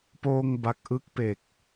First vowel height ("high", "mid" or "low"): mid